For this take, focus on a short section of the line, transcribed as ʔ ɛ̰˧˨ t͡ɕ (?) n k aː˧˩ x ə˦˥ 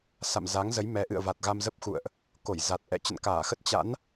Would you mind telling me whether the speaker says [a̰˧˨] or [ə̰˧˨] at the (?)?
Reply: ə̰˧˨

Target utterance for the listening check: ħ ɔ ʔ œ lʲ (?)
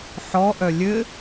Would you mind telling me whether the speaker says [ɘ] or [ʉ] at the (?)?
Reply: ɘ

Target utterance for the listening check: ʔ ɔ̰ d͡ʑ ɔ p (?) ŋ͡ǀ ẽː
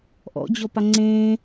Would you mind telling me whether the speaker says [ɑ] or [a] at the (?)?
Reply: a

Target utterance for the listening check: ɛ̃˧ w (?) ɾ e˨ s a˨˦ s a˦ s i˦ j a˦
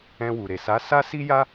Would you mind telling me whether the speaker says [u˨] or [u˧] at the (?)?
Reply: u˨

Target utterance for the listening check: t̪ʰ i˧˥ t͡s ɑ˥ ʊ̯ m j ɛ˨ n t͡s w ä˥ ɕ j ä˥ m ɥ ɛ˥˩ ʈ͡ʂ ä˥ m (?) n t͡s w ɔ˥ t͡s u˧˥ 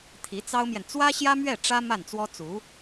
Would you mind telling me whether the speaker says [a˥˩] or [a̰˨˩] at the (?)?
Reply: a˥˩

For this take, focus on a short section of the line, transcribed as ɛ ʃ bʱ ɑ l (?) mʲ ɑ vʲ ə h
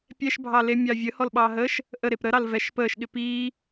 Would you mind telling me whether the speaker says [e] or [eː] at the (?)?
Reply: e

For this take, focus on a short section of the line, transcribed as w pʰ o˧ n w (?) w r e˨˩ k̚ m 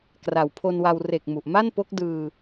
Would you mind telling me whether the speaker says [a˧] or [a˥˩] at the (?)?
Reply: a˧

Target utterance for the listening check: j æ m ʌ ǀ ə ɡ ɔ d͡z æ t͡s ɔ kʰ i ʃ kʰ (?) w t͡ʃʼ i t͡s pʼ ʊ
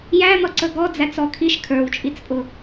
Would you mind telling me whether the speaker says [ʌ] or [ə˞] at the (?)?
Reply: ə˞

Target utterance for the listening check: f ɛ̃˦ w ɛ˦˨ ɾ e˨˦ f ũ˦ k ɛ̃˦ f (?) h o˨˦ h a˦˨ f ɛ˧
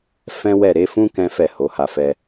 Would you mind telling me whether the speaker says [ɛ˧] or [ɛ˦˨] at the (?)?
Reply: ɛ˦˨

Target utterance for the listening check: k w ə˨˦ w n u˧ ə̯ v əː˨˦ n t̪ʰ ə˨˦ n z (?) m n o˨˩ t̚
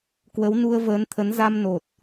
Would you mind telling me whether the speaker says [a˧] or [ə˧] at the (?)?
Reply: a˧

